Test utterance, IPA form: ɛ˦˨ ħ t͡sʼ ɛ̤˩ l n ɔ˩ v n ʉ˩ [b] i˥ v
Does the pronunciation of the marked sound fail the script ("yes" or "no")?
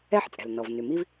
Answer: yes